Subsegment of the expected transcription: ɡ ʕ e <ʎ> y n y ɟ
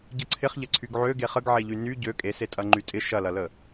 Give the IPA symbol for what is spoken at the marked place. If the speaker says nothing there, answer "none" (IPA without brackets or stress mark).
ʎ